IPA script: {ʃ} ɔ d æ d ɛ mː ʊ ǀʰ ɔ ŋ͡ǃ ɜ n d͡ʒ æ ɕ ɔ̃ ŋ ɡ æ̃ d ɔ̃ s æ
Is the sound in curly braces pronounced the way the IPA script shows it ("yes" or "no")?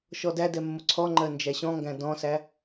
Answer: yes